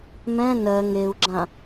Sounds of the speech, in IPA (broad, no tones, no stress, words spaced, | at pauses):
mɛ̃ nɜ ŋeu̯ɡ͡ǁã